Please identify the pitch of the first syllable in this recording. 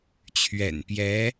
low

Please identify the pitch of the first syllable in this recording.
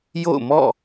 falling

